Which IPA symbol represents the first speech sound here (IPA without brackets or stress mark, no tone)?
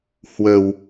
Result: h